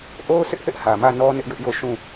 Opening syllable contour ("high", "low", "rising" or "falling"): high